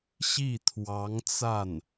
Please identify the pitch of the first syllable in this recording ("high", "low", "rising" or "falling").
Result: falling